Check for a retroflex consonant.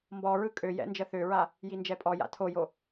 absent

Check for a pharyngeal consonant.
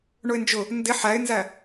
present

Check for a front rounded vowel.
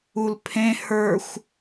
absent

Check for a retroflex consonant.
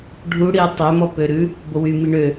present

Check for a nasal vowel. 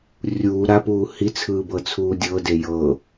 absent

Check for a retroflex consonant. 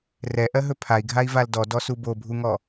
absent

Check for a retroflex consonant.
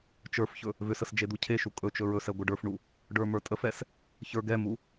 present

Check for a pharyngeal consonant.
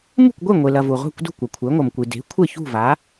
absent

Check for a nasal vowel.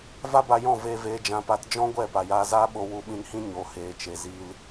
present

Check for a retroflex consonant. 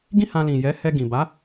absent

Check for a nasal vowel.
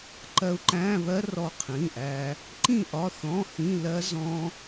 present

